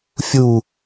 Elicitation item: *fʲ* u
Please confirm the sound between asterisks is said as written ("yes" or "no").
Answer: yes